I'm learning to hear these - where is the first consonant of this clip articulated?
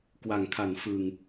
velum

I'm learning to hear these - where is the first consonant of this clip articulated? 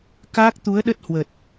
velum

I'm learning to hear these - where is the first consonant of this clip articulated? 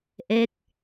throat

